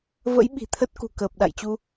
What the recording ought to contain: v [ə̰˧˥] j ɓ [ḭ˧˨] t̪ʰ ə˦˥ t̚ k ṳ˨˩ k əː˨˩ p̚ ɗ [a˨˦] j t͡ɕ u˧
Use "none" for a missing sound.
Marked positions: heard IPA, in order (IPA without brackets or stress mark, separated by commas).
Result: ə̰˧˥, i̤˨˩, a̰˧˨